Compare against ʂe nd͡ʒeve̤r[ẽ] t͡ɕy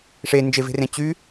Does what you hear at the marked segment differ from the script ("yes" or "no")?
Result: no